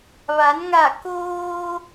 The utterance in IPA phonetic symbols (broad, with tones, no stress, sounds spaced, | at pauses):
ʋ a˩˧ n ŋ a˧˩ k oː˧